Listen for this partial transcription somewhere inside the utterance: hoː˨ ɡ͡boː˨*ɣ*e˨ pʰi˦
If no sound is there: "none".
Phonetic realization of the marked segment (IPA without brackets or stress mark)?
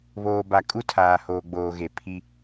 ɣ